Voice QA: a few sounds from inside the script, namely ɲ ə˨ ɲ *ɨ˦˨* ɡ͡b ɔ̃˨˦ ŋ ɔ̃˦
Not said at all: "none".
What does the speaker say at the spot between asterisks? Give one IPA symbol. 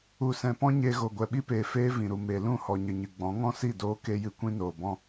ɨ˨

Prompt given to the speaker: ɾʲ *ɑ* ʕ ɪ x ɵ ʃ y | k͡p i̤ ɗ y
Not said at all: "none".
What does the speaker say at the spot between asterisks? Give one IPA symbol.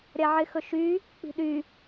a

